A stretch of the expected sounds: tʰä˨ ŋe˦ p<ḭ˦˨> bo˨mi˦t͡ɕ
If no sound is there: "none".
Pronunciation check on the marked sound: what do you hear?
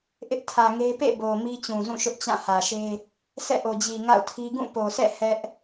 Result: ḛ˦˨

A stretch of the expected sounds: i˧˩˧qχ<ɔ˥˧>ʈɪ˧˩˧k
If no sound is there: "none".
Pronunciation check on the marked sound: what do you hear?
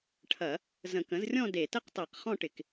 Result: ɔ̃˥˧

